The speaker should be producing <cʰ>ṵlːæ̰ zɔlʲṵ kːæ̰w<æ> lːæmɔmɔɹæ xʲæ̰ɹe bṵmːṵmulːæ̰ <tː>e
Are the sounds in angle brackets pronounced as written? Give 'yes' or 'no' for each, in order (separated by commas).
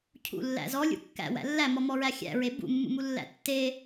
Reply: yes, no, yes